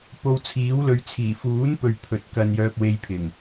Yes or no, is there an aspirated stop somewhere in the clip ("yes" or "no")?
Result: yes